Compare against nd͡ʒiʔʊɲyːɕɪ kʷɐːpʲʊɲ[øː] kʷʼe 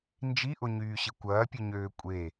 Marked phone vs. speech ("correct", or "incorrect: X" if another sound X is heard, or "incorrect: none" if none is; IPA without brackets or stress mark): correct